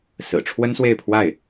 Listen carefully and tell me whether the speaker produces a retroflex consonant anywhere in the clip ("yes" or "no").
yes